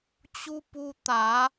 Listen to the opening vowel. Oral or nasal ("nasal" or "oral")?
oral